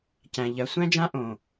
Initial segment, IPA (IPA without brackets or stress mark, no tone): c